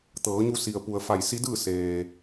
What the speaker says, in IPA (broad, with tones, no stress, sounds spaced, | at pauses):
t̪ ɤː˩˧ ɲ u˧ s i˩ ə̯ p u˩ ə̯ f a˧˩ j s i˧˥ d ɯː˥˨ s eː˩